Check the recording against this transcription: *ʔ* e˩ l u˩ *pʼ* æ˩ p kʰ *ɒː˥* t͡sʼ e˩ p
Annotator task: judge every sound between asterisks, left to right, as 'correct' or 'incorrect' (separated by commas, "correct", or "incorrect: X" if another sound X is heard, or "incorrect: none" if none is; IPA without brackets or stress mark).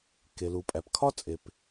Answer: incorrect: k, correct, incorrect: ɒ˥